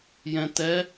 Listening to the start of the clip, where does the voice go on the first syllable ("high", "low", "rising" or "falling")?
low